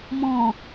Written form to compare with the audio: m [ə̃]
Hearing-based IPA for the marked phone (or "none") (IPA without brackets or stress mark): ɔ̃